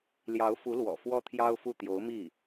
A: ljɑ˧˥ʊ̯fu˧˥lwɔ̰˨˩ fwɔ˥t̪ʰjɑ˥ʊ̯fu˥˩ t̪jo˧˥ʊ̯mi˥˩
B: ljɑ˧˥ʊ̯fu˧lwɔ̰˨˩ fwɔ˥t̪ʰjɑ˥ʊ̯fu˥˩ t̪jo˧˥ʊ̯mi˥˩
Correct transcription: A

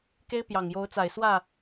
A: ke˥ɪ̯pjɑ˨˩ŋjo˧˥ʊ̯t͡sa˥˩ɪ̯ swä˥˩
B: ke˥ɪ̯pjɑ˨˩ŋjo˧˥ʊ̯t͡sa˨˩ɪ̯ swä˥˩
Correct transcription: B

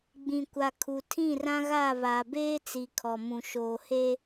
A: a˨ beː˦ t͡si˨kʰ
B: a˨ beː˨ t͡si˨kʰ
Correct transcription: A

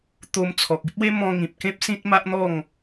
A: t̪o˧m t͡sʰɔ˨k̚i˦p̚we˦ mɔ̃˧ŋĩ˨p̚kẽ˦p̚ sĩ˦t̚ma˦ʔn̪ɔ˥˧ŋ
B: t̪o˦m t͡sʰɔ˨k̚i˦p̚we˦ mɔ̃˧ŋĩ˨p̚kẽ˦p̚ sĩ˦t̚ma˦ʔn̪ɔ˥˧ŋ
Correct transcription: A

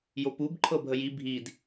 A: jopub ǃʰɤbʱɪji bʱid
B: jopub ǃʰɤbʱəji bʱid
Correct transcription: B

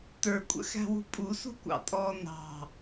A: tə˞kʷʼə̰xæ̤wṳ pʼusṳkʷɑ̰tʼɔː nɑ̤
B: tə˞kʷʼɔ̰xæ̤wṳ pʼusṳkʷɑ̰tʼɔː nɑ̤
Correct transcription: A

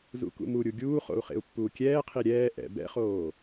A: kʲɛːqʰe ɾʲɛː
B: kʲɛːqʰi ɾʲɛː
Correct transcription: B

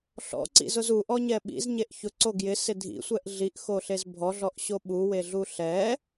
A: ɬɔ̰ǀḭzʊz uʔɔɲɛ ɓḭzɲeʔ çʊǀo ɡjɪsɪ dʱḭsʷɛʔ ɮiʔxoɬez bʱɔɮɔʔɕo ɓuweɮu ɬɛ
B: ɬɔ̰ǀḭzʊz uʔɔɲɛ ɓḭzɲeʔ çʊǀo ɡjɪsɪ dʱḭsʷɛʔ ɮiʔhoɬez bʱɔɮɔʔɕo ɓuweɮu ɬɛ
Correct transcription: A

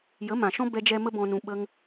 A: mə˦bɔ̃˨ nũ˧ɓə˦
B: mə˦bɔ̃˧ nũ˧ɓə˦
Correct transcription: B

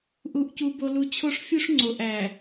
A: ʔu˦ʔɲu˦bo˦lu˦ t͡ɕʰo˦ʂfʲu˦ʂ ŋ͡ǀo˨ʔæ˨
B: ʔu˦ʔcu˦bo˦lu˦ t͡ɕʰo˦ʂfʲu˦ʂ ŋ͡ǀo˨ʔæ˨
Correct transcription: B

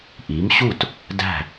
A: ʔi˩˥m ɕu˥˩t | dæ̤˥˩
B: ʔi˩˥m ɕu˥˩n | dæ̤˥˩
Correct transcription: A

